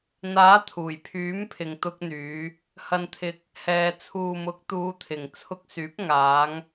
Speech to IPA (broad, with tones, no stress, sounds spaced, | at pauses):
n̪ aː˨˥ t̪ʰ uː˨˩ j pʰ yː˨˥ m pʰ ɪ˨ ŋ t̪ ʊ˧ k̚ n̪ yː˨˧ | h ɐ˨ n t̪ʰ ɪ˨ k̚ | h ɛː˨ t͡sʰ uː˨ m ʊ˨˥ k̚ t̪ uː˨˧ t̪ʰ ɪ˨ ŋ t͡sʰ ʊ˧ k̚ s yː˨˥ p̚ ŋ aː˨˧ ŋ